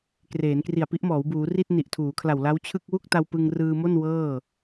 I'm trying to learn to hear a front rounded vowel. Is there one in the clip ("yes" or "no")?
no